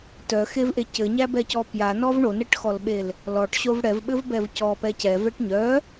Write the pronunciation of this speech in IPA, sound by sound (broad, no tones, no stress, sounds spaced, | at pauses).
t œ x e v ʔ e c ɘ ɲ æ b ɛ c ɔ p j a n ɔ v ɳ o n ɛ ʈ x ɔ l ɓ e l | l ɔ ʈ ɕ o v ɽ ɛ v ɓ ɘ v b ɛ v c ɔ p ɛ c ɛ v ɛ ʈ ɲ œ